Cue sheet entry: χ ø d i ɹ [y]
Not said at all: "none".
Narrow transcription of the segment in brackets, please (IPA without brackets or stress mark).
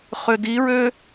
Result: ø